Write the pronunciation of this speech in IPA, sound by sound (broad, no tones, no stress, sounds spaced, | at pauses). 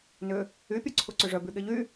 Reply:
n ʏ | y pʲ œ ǀʰ u ǀ ʏ ʐ œ b y ɠ e ʎ y